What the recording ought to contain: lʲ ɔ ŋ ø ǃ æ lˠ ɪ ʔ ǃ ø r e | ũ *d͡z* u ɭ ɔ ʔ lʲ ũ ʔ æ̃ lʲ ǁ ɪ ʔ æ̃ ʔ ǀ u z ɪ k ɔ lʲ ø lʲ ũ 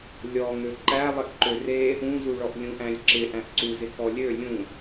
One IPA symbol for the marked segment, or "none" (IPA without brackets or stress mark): z